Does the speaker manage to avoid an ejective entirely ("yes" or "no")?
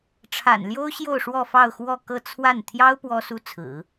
yes